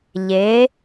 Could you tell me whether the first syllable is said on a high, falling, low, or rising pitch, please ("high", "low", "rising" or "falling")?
rising